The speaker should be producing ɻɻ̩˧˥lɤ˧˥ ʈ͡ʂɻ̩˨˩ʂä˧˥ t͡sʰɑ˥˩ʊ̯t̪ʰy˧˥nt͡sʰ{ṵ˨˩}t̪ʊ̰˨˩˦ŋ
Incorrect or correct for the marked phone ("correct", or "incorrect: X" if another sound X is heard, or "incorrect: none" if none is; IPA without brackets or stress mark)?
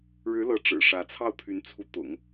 incorrect: u˧˥